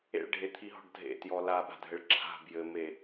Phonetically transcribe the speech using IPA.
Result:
ḛ ɭ ɖʱ e t̪ʰ i ɦ ɔ̤ ɖ dʱ ḛ t j ɔ l a ɓ a̤ dʱ ɘ ɭ ǁʰ a̤ b j ɘ m e

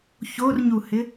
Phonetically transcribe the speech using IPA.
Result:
ç o r ɲ u h ɪ

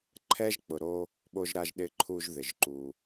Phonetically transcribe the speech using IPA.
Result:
ǃʰ ɛ˥ ʒ k͡p ʊ˩ ɾ o˧ | ɓ o˧ ʒ ɾ a˧ ʒ ɗ ɪ˧ ǃʰ u˧ ʒ ð ɪ˩ ʒ ǃ u˩

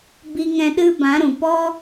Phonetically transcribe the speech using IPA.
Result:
b i˧ ŋ ɛ̃˧ ɗ ɨ˦ b ã˨˦ ɾ ũ˨ p ɔ˦

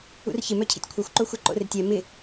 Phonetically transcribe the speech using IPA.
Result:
ṵ r ç ɪ m œ cʰ ḭ tʲ kʷʰ œ xʷ ǃ o xʷ ɛ ǃ o̰ r ɪ tʲ ɛ m ɪ

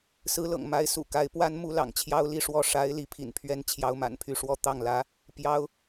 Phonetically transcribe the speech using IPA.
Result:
s ɹ̩˧˥ l ɤ̰˨˩ ŋ m a˧˥ ɪ̯ s ṵ˨˩ k a˧˥ ɪ̯ p w a˥ n m u˥ l ɑ̰˨˩ ŋ t͡ɕʰ j ɑ˥ ʊ̯ l i˥˧ ʂ w ɔ˥˩ ʂ a˧˥ ɪ̯ l i˧˥ pʰ ḭ˨˩ n pʰ ɥ ɛ˥ n t͡ɕʰ j ɑ˧˥ ʊ̯ m a̰˨˩ n pʰ y˧˥ ʂ w ɔ˥ t̪ ɑ˥˩ ŋ l ä˧˥ | p j ɑ˥ ʊ̯

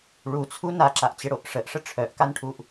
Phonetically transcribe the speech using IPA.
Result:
ɭ u t͡sʰ u n a ǁ a ʔ t͡ɕ ɪ ɽ o ʔ ʂ ə ʔ ʂ ə ʈ͡ʂʰ œ ʔ k a n ʈʰ u ʔ

